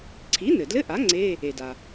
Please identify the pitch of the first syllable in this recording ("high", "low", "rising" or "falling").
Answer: rising